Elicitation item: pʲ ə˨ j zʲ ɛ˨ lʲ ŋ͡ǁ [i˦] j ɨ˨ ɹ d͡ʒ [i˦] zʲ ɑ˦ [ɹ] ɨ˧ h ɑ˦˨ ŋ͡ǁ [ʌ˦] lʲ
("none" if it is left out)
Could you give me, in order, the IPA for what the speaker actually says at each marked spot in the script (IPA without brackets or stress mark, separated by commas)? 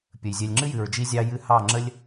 ɨ˦, i˦, j, ə˦